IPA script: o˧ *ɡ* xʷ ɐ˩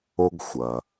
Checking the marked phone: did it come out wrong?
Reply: no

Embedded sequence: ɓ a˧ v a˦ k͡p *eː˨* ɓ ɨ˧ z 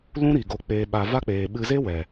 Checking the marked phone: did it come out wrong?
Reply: no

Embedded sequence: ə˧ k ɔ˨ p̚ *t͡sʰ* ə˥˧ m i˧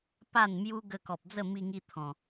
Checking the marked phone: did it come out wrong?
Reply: yes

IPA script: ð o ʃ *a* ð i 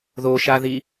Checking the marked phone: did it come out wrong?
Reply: no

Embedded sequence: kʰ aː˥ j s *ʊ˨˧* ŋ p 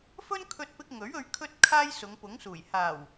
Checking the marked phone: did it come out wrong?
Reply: no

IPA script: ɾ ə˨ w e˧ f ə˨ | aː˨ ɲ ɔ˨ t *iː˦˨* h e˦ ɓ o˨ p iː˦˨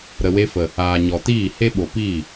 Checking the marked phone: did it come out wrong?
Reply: no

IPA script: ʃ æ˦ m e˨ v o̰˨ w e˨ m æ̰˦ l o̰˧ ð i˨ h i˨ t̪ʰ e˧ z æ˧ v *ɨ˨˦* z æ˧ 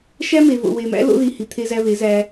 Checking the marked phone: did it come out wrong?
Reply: yes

